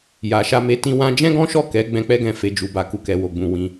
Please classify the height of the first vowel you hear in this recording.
low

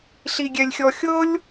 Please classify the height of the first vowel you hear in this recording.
high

